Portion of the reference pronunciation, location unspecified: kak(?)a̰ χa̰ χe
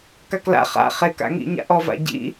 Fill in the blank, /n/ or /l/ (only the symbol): l